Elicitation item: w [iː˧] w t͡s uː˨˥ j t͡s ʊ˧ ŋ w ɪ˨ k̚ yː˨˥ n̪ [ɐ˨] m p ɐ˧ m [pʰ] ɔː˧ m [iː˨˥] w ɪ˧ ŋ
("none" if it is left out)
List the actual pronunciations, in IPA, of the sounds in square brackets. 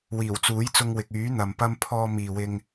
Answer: iː˨˩, ɐ˨, pʰ, iː˨

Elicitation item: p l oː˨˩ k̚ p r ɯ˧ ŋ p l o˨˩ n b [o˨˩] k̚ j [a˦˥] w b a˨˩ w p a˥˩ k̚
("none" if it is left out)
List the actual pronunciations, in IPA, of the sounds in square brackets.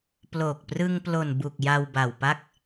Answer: u˨˩, a˧

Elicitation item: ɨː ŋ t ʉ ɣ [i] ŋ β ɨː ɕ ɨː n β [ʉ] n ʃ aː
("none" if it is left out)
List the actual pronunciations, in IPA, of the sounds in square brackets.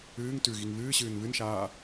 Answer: i, ɨ

